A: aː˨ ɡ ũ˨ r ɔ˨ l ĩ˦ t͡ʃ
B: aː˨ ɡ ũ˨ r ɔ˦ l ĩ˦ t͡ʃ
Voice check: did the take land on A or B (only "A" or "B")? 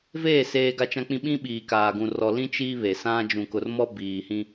A